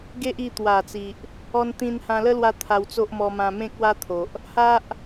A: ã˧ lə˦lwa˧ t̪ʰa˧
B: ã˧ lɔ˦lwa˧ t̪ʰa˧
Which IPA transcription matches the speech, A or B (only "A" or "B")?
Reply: A